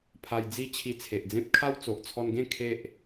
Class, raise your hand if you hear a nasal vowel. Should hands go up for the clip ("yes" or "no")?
yes